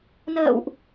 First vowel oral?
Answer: yes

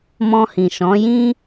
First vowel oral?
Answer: no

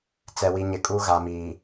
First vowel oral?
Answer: yes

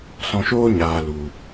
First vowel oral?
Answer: no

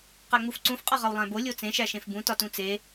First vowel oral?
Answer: yes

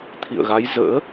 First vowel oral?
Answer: yes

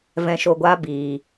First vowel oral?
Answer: no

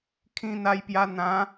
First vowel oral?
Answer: no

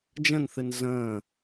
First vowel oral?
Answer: no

